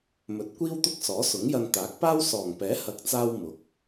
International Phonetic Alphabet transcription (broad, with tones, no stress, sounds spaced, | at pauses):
m ɵ˨˥ t̚ kʷ iː˥ w t̪ ʊ˥ k̚ s ɔː˨˥ s ʊ˨˥ ŋ j ɐ˧ n t̪ aː˨˥ k̚ p aː˥ w s ɔː˨˩ ŋ p ɛː˨˥ h ɐ˨ k̚ t͡s aː˧ w m ʊ˨˥ k̚